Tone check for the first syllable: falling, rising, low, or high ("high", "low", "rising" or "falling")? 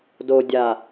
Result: low